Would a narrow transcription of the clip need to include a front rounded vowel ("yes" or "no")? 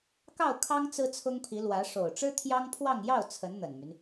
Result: yes